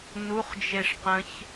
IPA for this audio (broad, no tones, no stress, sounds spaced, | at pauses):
n u χ d͡ʒ e ʂ q ə̃ ç